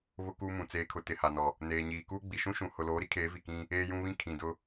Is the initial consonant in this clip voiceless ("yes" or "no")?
no